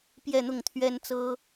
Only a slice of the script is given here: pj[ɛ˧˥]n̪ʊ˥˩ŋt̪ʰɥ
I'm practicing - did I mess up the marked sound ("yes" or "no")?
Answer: yes